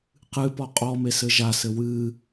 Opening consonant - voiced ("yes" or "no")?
no